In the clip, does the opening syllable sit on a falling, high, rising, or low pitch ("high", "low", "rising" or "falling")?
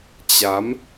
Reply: rising